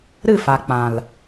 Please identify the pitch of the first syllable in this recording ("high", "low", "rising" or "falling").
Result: falling